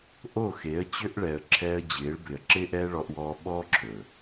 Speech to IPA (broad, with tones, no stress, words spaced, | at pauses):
ʔo˦˨xe˨˦ə̯t͡ɕø˦ʔ ɭɛ˨ə̯ ǁʰɛː˧ə̯d͡ʑɪː˨˦ɭbɪ˨ə̯ ǁɪː˦ʔɛː˦ ɭɔ˧ʔwɔː˧ɓɔː˦ ǁʰɵː˨